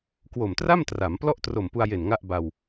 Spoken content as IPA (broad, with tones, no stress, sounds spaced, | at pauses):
k w o˨˩ m t r a˥˩ m t r a˩˦ m p l ɔ˥˩ ʔ t r o˨˩ m p u˧ a̯ j e˨˩ n ŋ a˥˩ ʔ b a˧ w